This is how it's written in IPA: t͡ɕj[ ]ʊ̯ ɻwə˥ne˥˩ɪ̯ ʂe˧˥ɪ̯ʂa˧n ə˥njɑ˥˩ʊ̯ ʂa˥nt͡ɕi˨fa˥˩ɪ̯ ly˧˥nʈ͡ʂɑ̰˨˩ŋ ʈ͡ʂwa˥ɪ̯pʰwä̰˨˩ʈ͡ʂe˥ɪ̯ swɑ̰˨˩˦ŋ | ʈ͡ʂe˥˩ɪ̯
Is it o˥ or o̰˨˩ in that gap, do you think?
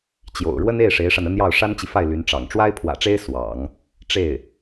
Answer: o̰˨˩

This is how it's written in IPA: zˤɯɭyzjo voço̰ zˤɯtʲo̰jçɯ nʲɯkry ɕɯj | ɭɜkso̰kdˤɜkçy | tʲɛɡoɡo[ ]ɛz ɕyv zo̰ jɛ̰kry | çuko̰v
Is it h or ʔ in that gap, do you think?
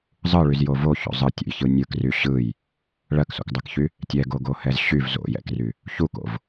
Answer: h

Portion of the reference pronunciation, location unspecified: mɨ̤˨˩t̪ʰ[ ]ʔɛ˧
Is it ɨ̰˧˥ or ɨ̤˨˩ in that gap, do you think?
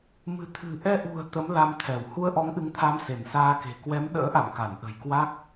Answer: ɨ̤˨˩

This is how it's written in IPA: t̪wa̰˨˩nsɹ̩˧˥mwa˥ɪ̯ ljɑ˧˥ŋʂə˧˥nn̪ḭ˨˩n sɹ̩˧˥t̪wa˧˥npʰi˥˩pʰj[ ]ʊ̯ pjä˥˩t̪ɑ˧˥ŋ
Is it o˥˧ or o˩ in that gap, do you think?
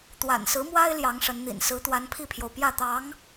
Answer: o˩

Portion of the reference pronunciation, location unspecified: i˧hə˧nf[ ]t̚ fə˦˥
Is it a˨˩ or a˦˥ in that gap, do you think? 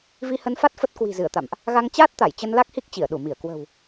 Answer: a˦˥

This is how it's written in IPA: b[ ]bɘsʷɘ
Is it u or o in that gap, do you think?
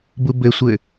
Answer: u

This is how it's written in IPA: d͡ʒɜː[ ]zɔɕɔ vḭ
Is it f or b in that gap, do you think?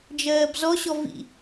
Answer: b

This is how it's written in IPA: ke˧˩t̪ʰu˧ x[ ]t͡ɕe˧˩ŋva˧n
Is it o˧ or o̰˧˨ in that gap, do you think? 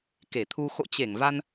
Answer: o̰˧˨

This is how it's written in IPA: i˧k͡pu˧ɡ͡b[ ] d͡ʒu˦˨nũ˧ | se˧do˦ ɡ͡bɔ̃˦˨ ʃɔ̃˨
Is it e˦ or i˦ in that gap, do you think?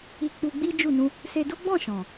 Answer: i˦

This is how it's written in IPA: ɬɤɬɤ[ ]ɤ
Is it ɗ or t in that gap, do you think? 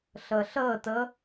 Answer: t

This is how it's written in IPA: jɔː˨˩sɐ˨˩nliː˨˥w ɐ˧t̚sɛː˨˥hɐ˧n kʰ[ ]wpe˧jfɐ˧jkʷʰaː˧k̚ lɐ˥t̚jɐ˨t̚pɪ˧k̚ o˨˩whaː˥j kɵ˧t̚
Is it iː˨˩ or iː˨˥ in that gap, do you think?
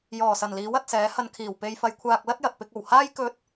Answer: iː˨˩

